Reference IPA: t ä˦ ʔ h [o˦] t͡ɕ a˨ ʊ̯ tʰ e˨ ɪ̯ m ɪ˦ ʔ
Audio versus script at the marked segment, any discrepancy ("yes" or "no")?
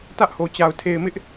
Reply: yes